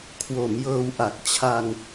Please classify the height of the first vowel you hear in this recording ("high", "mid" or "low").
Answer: mid